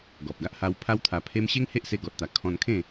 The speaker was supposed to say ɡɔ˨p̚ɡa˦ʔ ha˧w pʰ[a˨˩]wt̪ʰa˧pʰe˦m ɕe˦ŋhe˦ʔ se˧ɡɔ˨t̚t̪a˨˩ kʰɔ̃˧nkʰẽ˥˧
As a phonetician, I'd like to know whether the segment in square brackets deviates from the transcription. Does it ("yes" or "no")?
yes